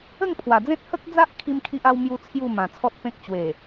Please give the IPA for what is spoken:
ə˥˧ ŋ pʰ w a˨˩ d͡z ẽ˦ t̚ h ə˦ k̚ d͡z a˦ ʔ kʰ i˦ m kʰ i˦ ʔ a˦ w m j u˦ t͡sʰ j u˥˧ m ã˨˩ t͡sʰ ɔ˦ t̚ p ẽ˦ k̚ t͡ɕ w e˨˩

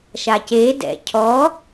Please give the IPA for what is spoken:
ʃ a c e d ɛ̰ cʰ ɔ

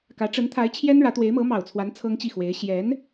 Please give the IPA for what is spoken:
k ä˧˥ ʈ͡ʂ ə˧˥ n t̪ʰ a˧˥ ɪ̯ t͡ɕʰ j ɛ˥ n ɻ ä˧˥ t̪ w e˧˥ ɪ̯ m ɤ˧˥ m ɑ˨˩ ʊ̯ t͡sʰ w a˧˥ n t͡sʰ ɤ˥ ŋ t͡ɕ i˥˩ x w e˧˥ ɪ̯ ɕ j ɛ˧˥ n

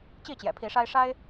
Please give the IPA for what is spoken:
t͡ɕ i˥˨ t͡ɕ j ɛ̰˨˩ pʰ i˨˦ ʂ a˦ ɪ̯ ʂ a˦ ɪ̯

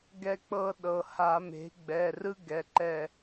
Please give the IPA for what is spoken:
ɡ ɛ˥ k͡p ɤ˥ ɗ ɤ˩˧˩ h a˧˩˧ m e̤˩˥ ɡ͡b ɛ˩˧˩ r ɯ˥ ɡ ɛ˩˧˩ ǃ ɛ˦˨

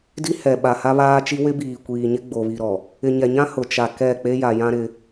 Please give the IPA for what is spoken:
d i˦ h ɛ˨ ɓ a˨ h a˦ β aː˦ t͡ʃ i˦ w ɪ˦ b iː˨ kʷ iː˨ ɲ ɪ˦ ɡ͡b o˨ β i˨ ɾ ɔ˨ | ɪ˨ ɲ ɛ˨ ɲ ã˦ h ʊ˨ t͡ʃ a˨ k ɛ˦˨ k͡p e˦ j a˨ j ã˦ ɾ ɪ˦

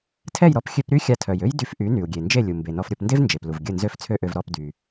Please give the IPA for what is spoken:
tʰ ɛ˥˩ j ɾ ɔ˥˩ p xʲ ø˧ p ɾ y˥ xʲ a˧ tʰ œ˩ j ø˥ j d y˧ f ʔ y˩˥ n y˩ u̯ ɡʲ e˩ n d͡ʒ e˥˩ lʲ u˩ m b e˩ n ɔ˧ f ɾʲ o˥˩ p n d e˥ v n d͡ʒ e˩ p l u˩ v ɡʲ ə˥˩ n z ø˥ f t͡sʰ ø˥ ʔ ø˧ v ɾ ɔ˥˩ p d y˩

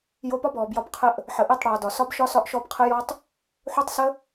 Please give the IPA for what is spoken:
j o˧ p ɒ˦ b ɔː˨ b j ɒ˧ b qʰ ə˧ ʔ | ħ ə˨ ʔ ɛ˦˨ tˤ ɽ ɒː˨ d ɒ˨ s ɒ˦ b ʃ ɒ˦ s ɒ˦ ʔ ʃ ɔ˦ b qʰ ə˦ j ɔ˦ tˤ | ħ o˦ tˤ s ə˦

